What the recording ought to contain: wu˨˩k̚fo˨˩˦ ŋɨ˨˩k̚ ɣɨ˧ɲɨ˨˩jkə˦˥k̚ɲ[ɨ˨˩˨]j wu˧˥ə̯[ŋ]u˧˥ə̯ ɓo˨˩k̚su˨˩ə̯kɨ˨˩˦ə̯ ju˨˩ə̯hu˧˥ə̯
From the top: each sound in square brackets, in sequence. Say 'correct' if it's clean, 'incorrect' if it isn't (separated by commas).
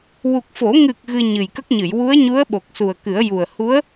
correct, incorrect